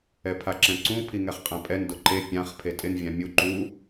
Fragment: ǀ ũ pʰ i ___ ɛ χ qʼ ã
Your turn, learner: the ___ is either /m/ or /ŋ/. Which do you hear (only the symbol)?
ŋ